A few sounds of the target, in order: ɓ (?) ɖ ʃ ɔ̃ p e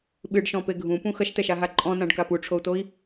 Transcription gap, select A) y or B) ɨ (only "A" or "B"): B